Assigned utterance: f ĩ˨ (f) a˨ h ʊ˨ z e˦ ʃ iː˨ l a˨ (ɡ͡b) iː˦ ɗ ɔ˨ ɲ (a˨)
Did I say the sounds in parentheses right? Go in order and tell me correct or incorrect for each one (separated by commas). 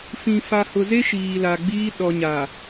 correct, correct, correct